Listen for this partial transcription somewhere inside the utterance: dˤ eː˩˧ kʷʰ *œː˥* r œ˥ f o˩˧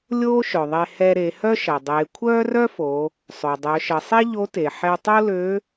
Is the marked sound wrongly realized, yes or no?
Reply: no